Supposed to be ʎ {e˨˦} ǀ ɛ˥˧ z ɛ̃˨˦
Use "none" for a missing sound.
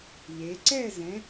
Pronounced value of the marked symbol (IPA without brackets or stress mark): e˨˦